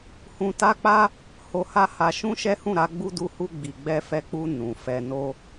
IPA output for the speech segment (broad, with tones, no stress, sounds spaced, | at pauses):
h ũ˧ t a˦ k͡p a˦ | h o˧ h a˦ h a˧ ʃ ũ˦ ʃ ɛ˦ h ũ˦˨ ɾ a˨˦ ɡ͡b u˧ d u˧ h u˧ ɡ͡b i˨ ɡ͡b ɛ˧ f ɛ˧ k͡p u˧ n ũ˨ f ɛ˧ n o˧